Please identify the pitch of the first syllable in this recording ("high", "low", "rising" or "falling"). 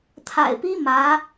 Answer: low